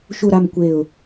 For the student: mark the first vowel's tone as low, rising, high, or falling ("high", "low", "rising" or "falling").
falling